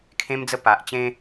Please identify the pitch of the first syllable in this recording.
high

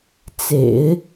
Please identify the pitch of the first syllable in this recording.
low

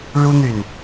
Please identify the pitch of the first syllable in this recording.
high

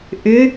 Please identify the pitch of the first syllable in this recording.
rising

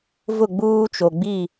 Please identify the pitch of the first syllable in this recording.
falling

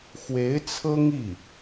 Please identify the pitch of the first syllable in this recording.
rising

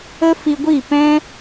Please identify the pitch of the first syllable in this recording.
high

